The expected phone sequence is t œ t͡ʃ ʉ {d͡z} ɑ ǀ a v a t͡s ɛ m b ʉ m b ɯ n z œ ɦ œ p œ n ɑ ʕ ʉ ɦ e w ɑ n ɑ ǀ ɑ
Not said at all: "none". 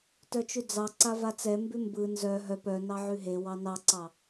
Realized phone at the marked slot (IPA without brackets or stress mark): d͡z